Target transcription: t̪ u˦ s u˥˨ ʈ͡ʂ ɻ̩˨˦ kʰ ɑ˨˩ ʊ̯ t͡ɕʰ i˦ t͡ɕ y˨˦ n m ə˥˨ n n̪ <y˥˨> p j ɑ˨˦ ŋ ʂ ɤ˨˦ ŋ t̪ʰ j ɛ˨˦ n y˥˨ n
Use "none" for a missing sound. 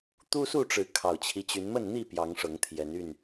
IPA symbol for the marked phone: i˥˨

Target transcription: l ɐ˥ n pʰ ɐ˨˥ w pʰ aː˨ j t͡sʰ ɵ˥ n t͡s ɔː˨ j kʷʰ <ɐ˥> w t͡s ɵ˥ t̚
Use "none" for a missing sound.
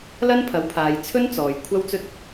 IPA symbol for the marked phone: ɐ˥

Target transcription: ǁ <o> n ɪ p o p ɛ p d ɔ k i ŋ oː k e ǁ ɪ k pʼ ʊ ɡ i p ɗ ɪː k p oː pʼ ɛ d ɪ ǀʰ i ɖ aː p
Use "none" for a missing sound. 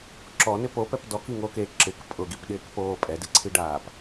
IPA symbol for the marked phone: ɔ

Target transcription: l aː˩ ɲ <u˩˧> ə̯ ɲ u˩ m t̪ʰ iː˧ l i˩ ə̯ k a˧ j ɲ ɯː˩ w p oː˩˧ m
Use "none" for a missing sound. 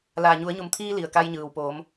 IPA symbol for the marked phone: u˩˧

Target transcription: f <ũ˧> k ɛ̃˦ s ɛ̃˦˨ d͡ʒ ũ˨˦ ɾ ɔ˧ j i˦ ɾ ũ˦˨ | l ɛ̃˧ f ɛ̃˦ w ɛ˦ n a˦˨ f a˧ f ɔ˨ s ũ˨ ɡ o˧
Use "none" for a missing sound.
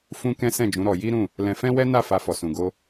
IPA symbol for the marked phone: ũ˦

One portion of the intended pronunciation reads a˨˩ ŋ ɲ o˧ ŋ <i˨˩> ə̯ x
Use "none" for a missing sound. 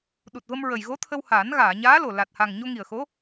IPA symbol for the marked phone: i˨˩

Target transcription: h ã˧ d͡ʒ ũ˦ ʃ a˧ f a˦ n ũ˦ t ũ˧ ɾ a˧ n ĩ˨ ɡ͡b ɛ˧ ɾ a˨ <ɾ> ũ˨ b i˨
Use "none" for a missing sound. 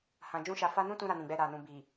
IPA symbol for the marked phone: n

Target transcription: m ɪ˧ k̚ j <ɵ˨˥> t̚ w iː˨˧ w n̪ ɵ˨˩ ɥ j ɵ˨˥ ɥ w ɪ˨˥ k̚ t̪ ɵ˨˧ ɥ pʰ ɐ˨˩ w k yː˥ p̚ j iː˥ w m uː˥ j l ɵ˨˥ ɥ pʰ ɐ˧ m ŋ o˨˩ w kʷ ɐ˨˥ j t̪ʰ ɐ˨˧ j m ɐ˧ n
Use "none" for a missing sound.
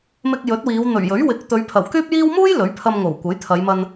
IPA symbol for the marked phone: ɵ˨˥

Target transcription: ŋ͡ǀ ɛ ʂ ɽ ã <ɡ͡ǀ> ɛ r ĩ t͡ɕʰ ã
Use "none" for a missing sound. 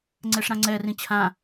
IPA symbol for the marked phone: ŋ͡ǀ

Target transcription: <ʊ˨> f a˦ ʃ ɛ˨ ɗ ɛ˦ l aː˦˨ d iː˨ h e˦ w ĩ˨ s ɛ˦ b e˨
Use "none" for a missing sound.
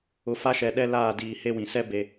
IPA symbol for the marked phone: ʊ˨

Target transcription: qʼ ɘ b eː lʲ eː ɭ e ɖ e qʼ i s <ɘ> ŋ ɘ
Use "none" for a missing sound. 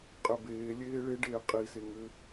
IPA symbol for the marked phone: e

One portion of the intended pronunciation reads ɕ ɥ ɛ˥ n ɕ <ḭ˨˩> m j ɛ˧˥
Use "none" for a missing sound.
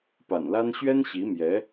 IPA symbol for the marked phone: i˧˥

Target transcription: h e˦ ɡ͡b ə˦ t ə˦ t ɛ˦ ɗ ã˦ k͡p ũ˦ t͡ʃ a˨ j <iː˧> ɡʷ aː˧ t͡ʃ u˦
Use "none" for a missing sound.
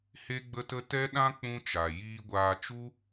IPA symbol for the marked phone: iː˧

